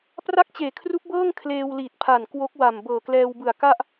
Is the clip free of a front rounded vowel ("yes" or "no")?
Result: yes